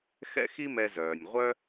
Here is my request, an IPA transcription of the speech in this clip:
x ɛ̰˥ x i˥ m ɛ˧ z œː˩ nʲ ʁʷ œ˥

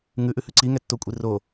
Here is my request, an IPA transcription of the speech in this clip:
ŋ ʉ ʔ ʉ h ʉ ǀ i ŋ ɛ tː o kʷʼ i r o

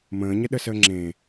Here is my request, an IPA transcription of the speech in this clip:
m ə̃ː ɲ ə ɗ ə s əː ŋ͡ǁ ẽ

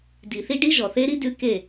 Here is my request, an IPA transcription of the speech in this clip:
d i˨ θ i˦ ɖ i˦ ʒ ɔ˨ θ e˦ ɾ i˦ d ʉ˦ k e˦˨

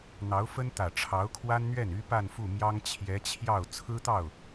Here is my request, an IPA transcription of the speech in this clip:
n̪ ɑ˧˥ ʊ̯ f ə˥ n t̪ ä˨˩ ʈ͡ʂʰ ɑ˧˥ ʊ̯ kʰ w a˥ n n̪ ɥ ɛ˥˩ n y˥ p a˥˧ n f u˥˩ m j ɑ˥ ŋ t͡ɕʰ j ɛ˧˥ t͡ɕʰ j ɑ˥˩ ʊ̯ t͡sʰ ɹ̩˥ t̪ ɑ˥˩ ʊ̯

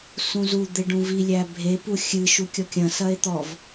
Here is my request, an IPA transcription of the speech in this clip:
s ũ z u d̪ e ɖ ũ v i lʲ æ bʱ e p u xʲ ɨ ʃ u kʲ ɔ kʲ ɐ̃ s ɐ e̯ t̪ ɔ v

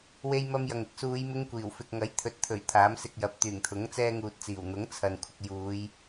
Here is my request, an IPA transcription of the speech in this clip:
w e˥ j m ɐ˥ m j ɐ˨ ŋ ɪ˧ k̚ s uː˨˧ j m ɪ˥ ŋ kʷ iː˨˩ w f ɪ˧ k̚ ŋ ɐ˨˥ j t̪ʰ ɵ˨˥ t̚ t̪ʰ ɵ˨˩ ɥ t̪ʰ aː˨˥ m s ɪ˧ k̚ j ɐ˨˥ p̚ t̪ yː˨˩ ŋ t̪ʰ ʊ˨˥ ŋ t͡s ɛː˥ ŋ uː˧ t̚ t͡s iː˨˩ w n̪ ʊ˨˥ ŋ t͡sʰ ɐ˨ n kʷʰ ɪ˨ k̚ j uː˨˧ j

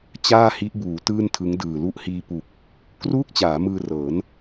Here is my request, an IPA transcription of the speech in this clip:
t͡ɕ aː˥˩ h i˦˥ ʔ b uː˩˦ t ɯː˥˩ n tʰ ɯ˦˥ ŋ d ɯː˨˩ l u˦˥ ʔ h iː˧ p u˨˩ k̚ | k r uː˥˩ k̚ t͡ɕ aː˩˦ m ɯː˧ r ɤː˩˦ n

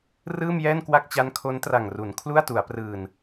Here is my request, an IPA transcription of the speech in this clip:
r ɯː˥˩ m j ɛː˥˩ n k w a˥˩ k̚ t͡ɕ a˦˥ n kʰ o˦˥ n t r a˨˩ ŋ r u˩˦ n kʰ l u˥˩ a̯ t u˩˦ a̯ p r ɯː˨˩ n

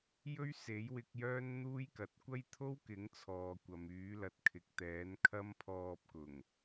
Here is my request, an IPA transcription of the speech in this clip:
j ɵ˥ ɥ s e˨˥ j w ɪ˧ k̚ j œː˥ n n̪ uː˥ j k ɐ˨˥ t̚ kʷ ɐ˥ j t̪ʰ o˥ w k ɪ˨˥ ŋ t͡sʰ ɔː˨ kʷ ɐ˨ m yː˨˥ l ɐ˨ t̚ kʰ ɪ˨ k̚ t̪ ɛː˨˥ n kʰ ɐ˥ m pʰ ɔː˧ p̚ k ʊ˨˩ ŋ

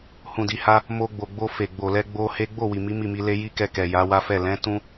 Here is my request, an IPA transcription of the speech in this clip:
h ũ˨ d i˨ h a˧ | m o˧ ɡ͡b o˨ ɡ͡b o˧ f e˨ ɡ͡b o˨ l ɛ˧ ɡ͡b o˧ h e˦ ɡ͡b o˦˨ w i˨ m i˨˦ m i˦˨ m i˧ l e˦ j i˦ k ɛ˧ k ɛ˨ j a˨˦ w a˦ f ɛ˦˨ l ɛ̃˨˦ t ũ˦

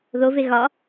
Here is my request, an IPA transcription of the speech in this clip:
ð o v e ɣ ɒ

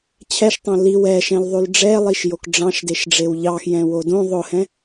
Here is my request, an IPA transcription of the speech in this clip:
t͡ɕʰ ɛ ʃ tˤ õ l i w ɛ ʃ ɛ̃ l ðˤ ʉ l ɖ͡ʐ ɛ lˠ i ʃ j o k ɖ͡ʐ ɑ̃ ʃ d e ʃ ɖ͡ʐ e w ʎ ɑ x j ɛ̃ w o d õ ðˤ ʊ h ɛ̃

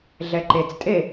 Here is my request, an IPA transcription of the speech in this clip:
ɮ ɛ ǃ e t͡s tʼ e

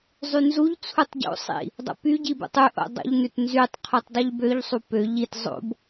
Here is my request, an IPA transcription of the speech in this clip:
zˤ y n z u ʎ t͡sʰ u tˤ ɟ o̰ sˤ ḭ | dˤ o̰ p y ɟ i b ṵ tˤ ʉ ʔ o̰ dˤ o̰ ʎ n ʉ t n z y tˤ qʰ u tˤ dˤ ʉ ʎ b ø ʎ sˤ u p ø ʎ i t zˤ o̰ b

